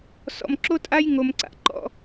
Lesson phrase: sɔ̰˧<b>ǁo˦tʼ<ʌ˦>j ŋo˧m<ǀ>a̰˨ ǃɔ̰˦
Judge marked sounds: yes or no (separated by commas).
no, no, yes